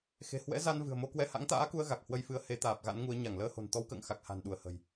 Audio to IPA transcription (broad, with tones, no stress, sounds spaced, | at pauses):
x e̤˨˩ h w ɛ̰˧˥ z a˧ n v ɨ̤˨˩ ə̯ m o˧ k w ɛ˧ h a̰˧˥ ŋ t̪ a̰ː˧˥ k u˧ ə̯ ɣ a˨˩ k̚ h w ə˧ j f ɨ˨˦ ə̯ h e˨˦ t̪ aː˨˩ p̚ ɣ a̰˧˥ n ŋ u˨˦ ə̯ ɲ a˧˩ ŋ l əː˧ h o̤˨˩ n t̪ ɔ˨˦ w k ə̰ː˧˨ ŋ x a˨˩ k̚ h a̤˨˩ n ɗ u˧˩ ə̯ h ə̤˨˩ j